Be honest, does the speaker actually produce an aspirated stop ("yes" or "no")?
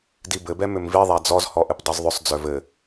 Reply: no